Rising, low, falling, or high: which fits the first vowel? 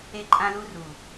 high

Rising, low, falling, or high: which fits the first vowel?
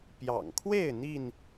low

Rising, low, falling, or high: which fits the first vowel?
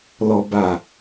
low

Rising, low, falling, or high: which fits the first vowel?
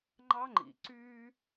high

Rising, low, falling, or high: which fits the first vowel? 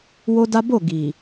high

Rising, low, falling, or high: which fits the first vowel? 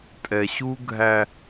low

